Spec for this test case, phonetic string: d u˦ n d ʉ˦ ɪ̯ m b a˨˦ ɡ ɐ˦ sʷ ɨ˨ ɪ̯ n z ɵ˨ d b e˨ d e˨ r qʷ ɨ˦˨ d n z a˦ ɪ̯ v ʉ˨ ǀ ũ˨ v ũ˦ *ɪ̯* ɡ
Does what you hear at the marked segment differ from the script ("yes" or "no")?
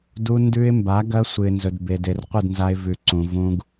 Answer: yes